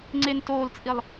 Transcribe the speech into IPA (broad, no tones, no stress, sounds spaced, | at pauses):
ŋ͡ǀ e n t oː l t͡sʼ i lˠ